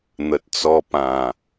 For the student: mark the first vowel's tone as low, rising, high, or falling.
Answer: low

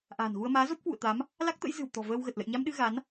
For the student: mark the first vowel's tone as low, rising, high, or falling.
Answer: low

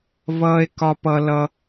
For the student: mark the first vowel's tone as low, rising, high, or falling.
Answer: high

